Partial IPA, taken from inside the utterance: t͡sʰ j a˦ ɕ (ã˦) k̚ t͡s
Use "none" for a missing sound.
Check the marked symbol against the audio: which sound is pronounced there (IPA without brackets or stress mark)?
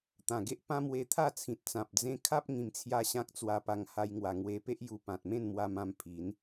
ã˦